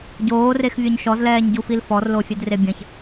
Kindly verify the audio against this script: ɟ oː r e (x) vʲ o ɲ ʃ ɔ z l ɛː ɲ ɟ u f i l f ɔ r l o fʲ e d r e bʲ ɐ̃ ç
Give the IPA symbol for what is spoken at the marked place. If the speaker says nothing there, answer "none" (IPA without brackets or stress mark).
x